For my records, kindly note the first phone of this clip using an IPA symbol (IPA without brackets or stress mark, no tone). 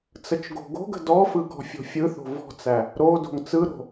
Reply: t͡s